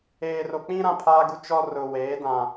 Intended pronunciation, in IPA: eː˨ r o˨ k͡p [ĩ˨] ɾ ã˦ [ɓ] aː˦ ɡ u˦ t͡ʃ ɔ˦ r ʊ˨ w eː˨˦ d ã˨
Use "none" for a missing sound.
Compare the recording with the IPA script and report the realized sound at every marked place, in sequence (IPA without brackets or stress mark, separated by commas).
ĩ˦, pʰ